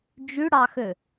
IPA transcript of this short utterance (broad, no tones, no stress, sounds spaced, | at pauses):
d͡ʒ y ɽ ɑ x ø